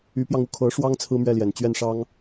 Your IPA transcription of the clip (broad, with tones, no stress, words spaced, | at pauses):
y˧˥pjɑ˧ŋu˥˩ kʰɤ˧˥ʂwɑ˥ŋ t͡sʰɹ̩˥mɥɛ˥˩ljɛ˨˩n t͡ɕɥɛ˥˩nʂɑ˥ŋ